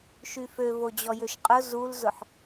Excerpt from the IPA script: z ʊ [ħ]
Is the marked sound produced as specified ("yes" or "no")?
yes